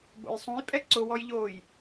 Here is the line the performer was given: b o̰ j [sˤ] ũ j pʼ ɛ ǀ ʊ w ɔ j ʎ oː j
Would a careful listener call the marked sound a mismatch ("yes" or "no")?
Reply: no